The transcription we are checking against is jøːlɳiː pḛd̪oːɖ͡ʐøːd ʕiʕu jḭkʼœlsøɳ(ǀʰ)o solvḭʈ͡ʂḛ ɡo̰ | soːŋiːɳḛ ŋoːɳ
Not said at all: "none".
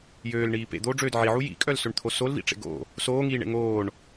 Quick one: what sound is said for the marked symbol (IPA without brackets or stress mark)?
t̪ʰ